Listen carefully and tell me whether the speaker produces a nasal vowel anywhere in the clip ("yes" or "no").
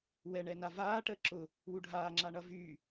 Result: no